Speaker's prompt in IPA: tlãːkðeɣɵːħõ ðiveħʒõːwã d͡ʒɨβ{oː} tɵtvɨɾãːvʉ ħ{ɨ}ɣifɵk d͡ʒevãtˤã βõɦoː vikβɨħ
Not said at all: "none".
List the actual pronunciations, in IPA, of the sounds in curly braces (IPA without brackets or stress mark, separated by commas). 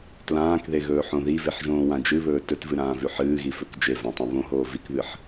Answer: ɵː, ɨː